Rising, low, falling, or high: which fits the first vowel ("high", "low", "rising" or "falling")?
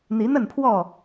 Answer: rising